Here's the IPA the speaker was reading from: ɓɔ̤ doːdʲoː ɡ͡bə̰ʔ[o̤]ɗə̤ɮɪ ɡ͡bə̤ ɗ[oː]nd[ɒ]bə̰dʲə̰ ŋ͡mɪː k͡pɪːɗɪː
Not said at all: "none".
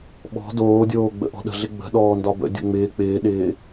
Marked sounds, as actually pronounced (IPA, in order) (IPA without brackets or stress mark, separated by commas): ɔ̤, ɔː, ɒ